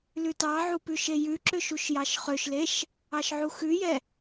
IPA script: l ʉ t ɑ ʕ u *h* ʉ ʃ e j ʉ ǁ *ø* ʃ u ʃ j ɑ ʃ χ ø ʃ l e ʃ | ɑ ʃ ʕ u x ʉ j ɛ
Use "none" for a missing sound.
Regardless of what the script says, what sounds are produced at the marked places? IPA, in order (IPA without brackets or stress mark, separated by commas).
p, ø